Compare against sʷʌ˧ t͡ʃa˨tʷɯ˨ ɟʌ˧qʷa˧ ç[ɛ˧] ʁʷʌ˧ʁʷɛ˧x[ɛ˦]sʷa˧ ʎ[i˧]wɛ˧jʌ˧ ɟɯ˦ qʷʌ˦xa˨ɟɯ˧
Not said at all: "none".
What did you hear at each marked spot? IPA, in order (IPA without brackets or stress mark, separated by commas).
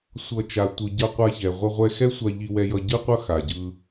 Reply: ɛ˨, ɛ˦, i˧